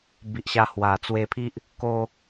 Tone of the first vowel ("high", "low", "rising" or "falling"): low